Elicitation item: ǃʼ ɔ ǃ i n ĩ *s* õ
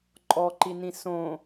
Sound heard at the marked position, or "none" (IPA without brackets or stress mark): s